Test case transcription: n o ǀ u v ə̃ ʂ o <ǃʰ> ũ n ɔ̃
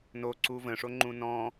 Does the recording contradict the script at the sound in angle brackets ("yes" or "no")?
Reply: yes